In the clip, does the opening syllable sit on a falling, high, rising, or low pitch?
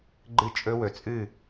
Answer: falling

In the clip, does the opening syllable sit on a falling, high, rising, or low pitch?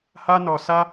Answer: high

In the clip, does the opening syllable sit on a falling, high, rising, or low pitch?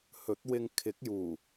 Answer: rising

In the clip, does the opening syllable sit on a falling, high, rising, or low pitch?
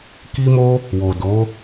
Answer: high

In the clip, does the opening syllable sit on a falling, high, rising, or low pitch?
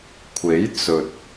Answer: rising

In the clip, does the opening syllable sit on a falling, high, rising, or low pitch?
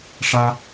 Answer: high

